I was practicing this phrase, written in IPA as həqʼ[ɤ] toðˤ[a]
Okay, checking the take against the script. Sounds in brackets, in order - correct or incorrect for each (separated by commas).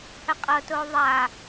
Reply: correct, correct